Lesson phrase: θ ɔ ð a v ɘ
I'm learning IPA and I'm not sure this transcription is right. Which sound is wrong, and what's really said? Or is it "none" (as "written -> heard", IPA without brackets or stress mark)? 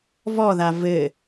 θ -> v